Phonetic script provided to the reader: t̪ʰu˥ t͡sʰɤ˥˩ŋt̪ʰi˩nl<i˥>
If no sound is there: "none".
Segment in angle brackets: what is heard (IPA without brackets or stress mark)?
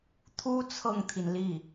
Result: i˥˩